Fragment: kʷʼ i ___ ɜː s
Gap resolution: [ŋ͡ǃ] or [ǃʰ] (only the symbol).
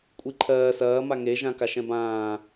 ǃʰ